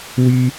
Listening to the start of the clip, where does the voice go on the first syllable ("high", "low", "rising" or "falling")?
high